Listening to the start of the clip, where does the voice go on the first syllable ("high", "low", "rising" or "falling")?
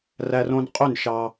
high